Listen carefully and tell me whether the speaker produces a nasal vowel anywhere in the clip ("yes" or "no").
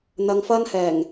no